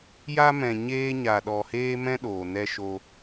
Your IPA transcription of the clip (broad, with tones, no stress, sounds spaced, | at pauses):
j a˦ m ɛ̃˧ ɲ eː˦ ɲ a˧ ɗ ɔ˧ h eː˦ m ɛ̃˦ ɗ oː˨ n ɛ˧ ʃ o˧